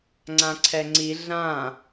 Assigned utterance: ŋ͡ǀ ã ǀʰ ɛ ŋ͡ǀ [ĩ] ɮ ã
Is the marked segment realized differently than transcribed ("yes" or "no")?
yes